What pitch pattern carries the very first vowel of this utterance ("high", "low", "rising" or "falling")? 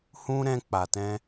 high